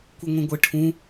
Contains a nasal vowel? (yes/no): yes